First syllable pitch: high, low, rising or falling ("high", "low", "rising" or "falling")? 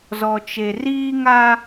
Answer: low